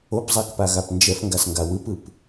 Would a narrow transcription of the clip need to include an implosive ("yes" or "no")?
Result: no